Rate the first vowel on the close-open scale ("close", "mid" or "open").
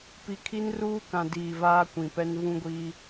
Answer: close